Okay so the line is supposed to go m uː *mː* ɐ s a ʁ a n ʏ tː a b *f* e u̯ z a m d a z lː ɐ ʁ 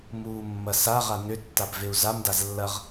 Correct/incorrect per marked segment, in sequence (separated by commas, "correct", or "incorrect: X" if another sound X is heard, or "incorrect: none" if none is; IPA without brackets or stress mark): correct, incorrect: v